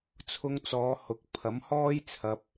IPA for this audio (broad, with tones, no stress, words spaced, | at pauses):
t͡sʰʊ˧ŋ t͡sɔː˨˧hʊ˨˥k̚ pʰɐ˨˥mhɔː˥j t͡sʰɐ˧p̚